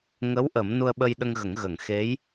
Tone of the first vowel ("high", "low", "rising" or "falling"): rising